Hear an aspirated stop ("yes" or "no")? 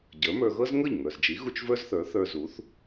no